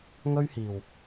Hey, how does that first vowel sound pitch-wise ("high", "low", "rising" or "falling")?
high